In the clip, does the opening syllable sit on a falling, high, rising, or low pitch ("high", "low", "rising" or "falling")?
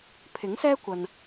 rising